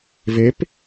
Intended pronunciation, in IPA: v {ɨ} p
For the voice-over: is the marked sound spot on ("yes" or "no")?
no